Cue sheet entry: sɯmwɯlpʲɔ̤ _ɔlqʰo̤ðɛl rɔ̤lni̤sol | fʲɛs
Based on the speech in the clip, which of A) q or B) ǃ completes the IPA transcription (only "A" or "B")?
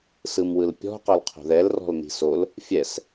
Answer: A